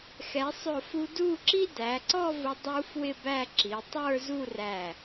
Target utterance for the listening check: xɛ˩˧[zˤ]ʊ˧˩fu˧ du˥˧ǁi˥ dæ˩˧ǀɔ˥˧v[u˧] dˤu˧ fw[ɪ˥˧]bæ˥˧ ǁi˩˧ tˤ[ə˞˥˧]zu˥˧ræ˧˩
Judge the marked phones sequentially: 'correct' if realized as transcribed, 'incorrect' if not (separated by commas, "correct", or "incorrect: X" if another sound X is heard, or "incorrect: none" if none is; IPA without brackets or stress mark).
incorrect: sˤ, incorrect: ʊ˧, correct, correct